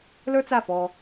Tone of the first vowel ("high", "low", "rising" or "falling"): high